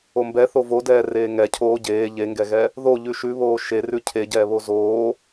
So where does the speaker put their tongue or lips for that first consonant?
lips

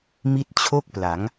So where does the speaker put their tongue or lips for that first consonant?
lips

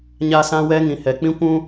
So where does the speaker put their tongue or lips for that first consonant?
palate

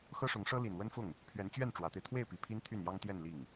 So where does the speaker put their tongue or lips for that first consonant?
velum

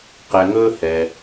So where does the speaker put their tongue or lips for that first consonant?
uvula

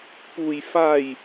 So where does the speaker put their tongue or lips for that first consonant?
lips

